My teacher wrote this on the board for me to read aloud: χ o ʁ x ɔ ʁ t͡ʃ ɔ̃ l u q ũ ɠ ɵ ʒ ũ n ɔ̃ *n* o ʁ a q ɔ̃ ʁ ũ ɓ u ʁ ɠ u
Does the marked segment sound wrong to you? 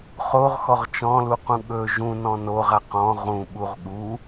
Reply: no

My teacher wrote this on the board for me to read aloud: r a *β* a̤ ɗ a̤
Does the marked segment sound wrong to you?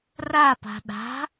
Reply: yes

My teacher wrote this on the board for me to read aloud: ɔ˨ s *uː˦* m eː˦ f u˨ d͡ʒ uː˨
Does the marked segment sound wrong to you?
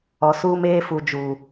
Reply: no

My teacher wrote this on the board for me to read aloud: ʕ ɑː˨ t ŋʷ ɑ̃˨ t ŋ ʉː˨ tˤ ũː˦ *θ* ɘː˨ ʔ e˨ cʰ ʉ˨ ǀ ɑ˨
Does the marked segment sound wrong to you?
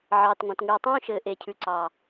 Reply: yes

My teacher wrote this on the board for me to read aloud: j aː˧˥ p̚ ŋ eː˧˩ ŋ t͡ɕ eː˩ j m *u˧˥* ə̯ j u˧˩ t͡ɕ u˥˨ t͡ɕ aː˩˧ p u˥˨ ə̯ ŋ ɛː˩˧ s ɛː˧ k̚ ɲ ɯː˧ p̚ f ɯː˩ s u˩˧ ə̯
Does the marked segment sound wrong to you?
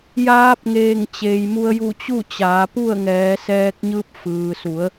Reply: yes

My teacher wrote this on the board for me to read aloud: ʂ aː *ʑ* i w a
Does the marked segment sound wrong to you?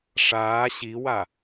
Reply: yes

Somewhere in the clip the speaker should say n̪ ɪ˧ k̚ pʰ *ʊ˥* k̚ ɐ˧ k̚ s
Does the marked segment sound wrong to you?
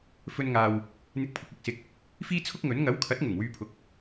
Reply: yes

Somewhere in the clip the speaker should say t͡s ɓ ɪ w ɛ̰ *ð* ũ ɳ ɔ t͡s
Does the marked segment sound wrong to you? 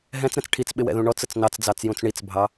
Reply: no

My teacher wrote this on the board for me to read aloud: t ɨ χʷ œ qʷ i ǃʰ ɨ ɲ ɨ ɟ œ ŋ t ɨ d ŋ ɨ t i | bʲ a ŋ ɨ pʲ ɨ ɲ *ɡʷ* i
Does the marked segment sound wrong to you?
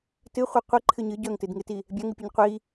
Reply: yes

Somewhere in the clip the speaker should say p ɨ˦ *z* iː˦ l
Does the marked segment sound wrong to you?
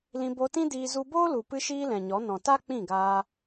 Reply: yes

